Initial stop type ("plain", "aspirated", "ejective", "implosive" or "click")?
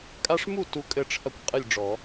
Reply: ejective